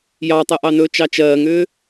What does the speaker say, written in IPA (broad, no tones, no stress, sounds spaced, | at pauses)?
j ɑ tˤ ɛ ʔ ɑ n ɵː t͡ʃ ɑ t͡ʃ ɜː ŋ ʏː